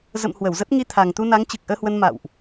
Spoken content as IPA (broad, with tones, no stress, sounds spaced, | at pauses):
z ə̰˧˨ m h w ə˧˩ w z ə˦˥ t̚ ŋ i˧ t̪ʰ a˨˩ ŋ t̪ u˧ n a˨˦ ŋ t͡ɕ ɨ˨˩ k̚ ʔ əː˧ h w ə˧ n m a̰˧˨ w ʔ